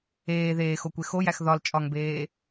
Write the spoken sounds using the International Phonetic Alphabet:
eː ð eː x o kʷ e x o j æ x ð ɒ l t͡ʃʼ ɒ ŋ b eː

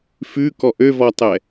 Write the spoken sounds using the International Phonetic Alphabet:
f ʉ k ɔ ʔ ø v ɔ tˤ ɛ

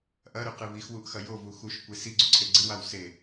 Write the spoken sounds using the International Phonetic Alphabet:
ʔ ɐ ɾ ʉ q ɨ β i x w u ʔ x ɐ j o v u x u ʃ kʷ e s i ɡ͡ǀ u ǀʰ e ɡ͡ǀ ɨ w a w s e

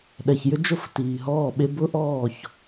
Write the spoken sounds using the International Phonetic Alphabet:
ɗ ɛ˨ ç j ʏ˦ d͡ʒ ʊ˦˨ f t iː˨ ɦ ɔː˦˨ ɓ e˦ b ʊ˦ ʔ ɔː˦˨ ç

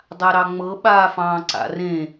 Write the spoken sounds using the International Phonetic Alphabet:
dˤ a ɾ ɑ ŋ͡m ɤ ɓ aː f ɑ̃ː ǀ a̰ r ẽ

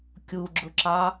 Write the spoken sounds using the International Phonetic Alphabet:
kʲ u ɡ͡ǁ ʊ ǁ ɑ

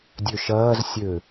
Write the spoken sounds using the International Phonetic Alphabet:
dʲ ø ʃ ɐː z sʲ ø

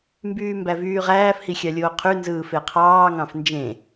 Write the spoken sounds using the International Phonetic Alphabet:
m b yː m b æ v yː ʁ æː f h i xʲ ɑ lʲ oː qʰ y n z ɯː f e qʰ ɑː ŋ ɑ̃ f n d͡ʒ ẽ

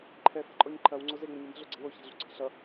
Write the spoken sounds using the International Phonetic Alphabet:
ǃʰ ɛ f ɛ̤ ǃʼ ɔ ɲ ǃʰ ɐ w ŋ͡ǀ o z e ŋ͡m ə ɲ ə m ə̤ ɮ o ɡ͡ǀ e̤ w o ç ɛ̤ ɮ ṳ ǀʰ ə̤ ɬ ʌ

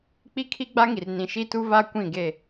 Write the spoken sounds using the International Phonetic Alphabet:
k͡p i˦ kʰ i˦ ɡ͡b a˦ ŋ i˨ r n ĩ˨ ʃ i˦ t u˦ v a˦ kʷ ĩ˦˨ ɡ e˦˨

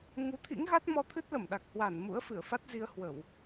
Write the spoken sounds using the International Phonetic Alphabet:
ŋ u˨˦ t̪ʰ ḭ˧˥ ŋ ɣ a˦˥ t̚ m ɔ˧ t̪ʰ ɨ˦˥ t̚ l ə˧˩ m ɗ a˨˩ k̚ h w a˧˩ n m ṵ˧˥ ə̯ f ɨ˧˩ ə̯ f a˦˥ t̚ z i˧ ə̯ h w ə˧˩˨ w

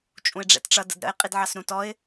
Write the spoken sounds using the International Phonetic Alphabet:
t͡ʃʼ ũ ɪ̯ ɖ͡ʐ ɛ̰ t ʈ͡ʂ ʌ d ə̰ d ɾ ə̰ ɪ̯ qʼ i d ʕ ɑ s ɾ ũ t ɔ ɪ̯

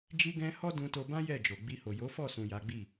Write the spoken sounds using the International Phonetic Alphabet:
d͡ʒ i˦ ɡ ɛ̃˦ h ɔ˦ d ũ˧ t o˧ b ã˦ j ɛ˦˨ d͡ʒ o˨ ɡ͡b i˧ h o˨ j o˨˦ f ɔ˦˨ s ũ˨ j a˨˦ ɡ͡b i˦˨

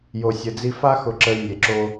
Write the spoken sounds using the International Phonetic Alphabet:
j o˨ sʲ ə˨ d͡z i˦ f a˦ x ʊ˨ ǁ ə˨ y̯ nʲ e˨ ǁ o˦

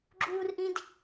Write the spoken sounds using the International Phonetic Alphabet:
ɡ͡ǁ u r ʔ ĩ d

